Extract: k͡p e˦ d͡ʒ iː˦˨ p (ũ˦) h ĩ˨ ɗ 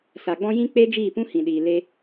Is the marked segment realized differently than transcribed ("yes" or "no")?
no